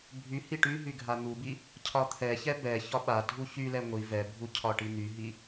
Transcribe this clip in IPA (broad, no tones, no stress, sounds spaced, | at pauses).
bʱ y h i ʈ y ɦ y ɡʱ a n̪ u b i | cʰ ɒ t̪ʰ ɛ ç ɛ b ɛ ç ɒ ɓ a dʱ u ç y l ɛ ŋʷ i v ɛ bʱ u cʰ ɒ ʈ i n̪ y ɦ i